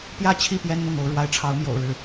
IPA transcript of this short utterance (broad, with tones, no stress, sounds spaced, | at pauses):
p j ä˥˧ t͡ɕʰ i˥˩ p j ɛ˥ n n̪ ʊ˥˩ ŋ o˧˥ ʊ̯ ɻ w a˧˥ ɪ̯ ʈ͡ʂʰ ɑ˧˥ ʊ̯ m j o̰˨˩ ʊ̯ ɻ ɻ̩˥˩